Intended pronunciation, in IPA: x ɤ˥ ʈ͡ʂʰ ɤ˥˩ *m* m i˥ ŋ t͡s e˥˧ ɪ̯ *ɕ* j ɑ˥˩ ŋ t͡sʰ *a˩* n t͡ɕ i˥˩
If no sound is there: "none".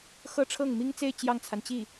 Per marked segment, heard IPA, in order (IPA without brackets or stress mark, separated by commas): ŋ, t͡ɕ, a˩